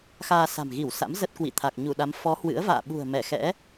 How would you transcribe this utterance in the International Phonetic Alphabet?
x aː˧ s a̤˨˩ m ɣ i˧˩ w s a̰˧˥ m z ə˦˥ t̚ k w ḭ˧˨ t̪ʰ a˨˩ k̚ ɲ u˧˩ ɗ a˨˦ m f ɔ˨˦ h w ɨ̰˧˥ ə̯ v a̰ː˧˨ ɓ ṳ˨˩ ə̯ m ɛ˧˩ x ɛ̰˧˥

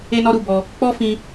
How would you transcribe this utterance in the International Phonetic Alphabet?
e˦ n ɔ˦ ɾ u˧ b ɔ˧ | k͡p ɔ˦ f ĩ˧

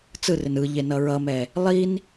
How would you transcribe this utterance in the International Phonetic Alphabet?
t͡s ɯ r ɪ n ɯ ʎ e n ʌ ɹ ʌ m ɛ | lˠ i n

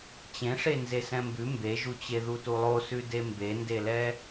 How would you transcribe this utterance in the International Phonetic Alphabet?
t͡ɕ ẽ ʂ e n z e s ɛ̃ m b ʉ m b e ʒ u t͡ɕ e ð u t u lˠ o s ʉ d e m b e n d e l ɛ

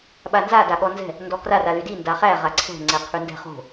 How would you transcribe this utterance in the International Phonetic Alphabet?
ɓ a n z a d a ɠ ɔ n z ɛ̤ | n d ɔ k r a r a l y d i n d a χ æ ʁ a ǀʰ ɛ̤ ŋ͡ǀ ɛ qʰ y n d ɛ̤ χ o̤

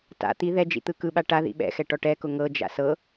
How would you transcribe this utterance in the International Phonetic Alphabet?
t a̰ t̪ i ð ɛ d͡ʒ ḭ t̪ ɯ k ɯ ɓ a ʈ a ð ḭ ɓ ɛ̰ x ɛ ʈ ɔ ʈ ɛ k ʊ ŋ ɤ d͡ʒ a̰ s ɤ

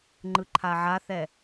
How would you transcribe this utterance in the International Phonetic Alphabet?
ŋ͡ǃ ɯ ǃʰ a ʕ a θ ɛ

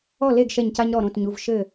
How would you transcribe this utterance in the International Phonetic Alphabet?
ɔ˥˩ l e˥˩ ɡ ʃ ɛ˧˩ ɲ c a˧ ɲ ɾ ɔ˧˩ ɾ õ˧˩ t ɲ u˩˧˩ v ʃ ɘ˧˩

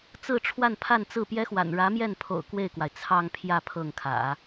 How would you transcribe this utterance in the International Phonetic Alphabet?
t͡s ɹ̩˥˧ ʈ͡ʂʰ w a˥˧ n pʰ a˥˧ n t͡s ɹ̩˥˩ p j ɛ˥ x w a̰˨˩ n ɻ ä˧˥ m j ɛ˥˩ n pʰ o̰˨˩ ʊ̯ k w e˥˩ ɪ̯ k w a˩ ɪ̯ t͡sʰ ɑ˥˧ ŋ pʰ j ä˥˧ pʰ ɤ˥˩ ŋ kʰ ä̰˨˩˦

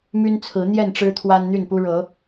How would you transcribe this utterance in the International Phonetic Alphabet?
m y˦ n t͡sʰ ɹ̩˨˦ n̪ j ɛ˥˨ n ʈ͡ʂ ɻ̩˦ t̪ʰ w a˦ n n̪ y˥˨ n p u˦ ɻ ɤ˨˦

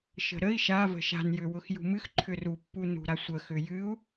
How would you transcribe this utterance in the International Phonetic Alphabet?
ʃ ə̤ ɾ ə i̯ ʃ a v ə̤ ʃ a̤ n j ʏ w ʊ x j ṳ m ɨ x ǃʰ ʏ r u pː u n ṳ ɾ a sʷ ə x ʏ j ɨ u̯

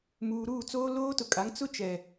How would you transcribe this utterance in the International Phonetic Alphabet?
m uː˨ ɾ uː˦˨ t͡s oː˦ l oː˦ t ʊ˨ kʼ a˨˦ ŋ t͡s ʊ˦ t͡ʃ ɛ˨

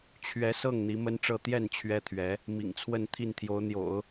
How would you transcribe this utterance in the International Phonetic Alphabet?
t͡ɕʰ ɥ ɛ˧˥ s ɤ˥˩ ŋ n̪ i˧˥ m ə˥ n ʈ͡ʂ ɤ˥˧ t̪ j ɛ˥˩ n t͡ɕʰ ɥ ɛ˥ t̪ʰ ɥ ɛ˧˥ | m ḭ˨˩ ŋ t͡sʰ w ə˥˧ n t̪ʰ i˥˩ n t̪ʰ j o˧˥ ʊ̯ n̪ j o̰˨˩˦ ʊ̯

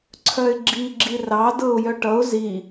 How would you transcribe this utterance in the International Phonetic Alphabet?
ǀʰ œ ɪ̯ ɡ͡ǁ i ɡ͡ǁ i r ɑ d ɤ ʊ̯ j œ ʈ ʌ ʊ̯ z i

